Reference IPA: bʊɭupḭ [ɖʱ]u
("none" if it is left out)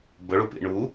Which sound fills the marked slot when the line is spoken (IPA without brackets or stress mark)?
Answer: ɳ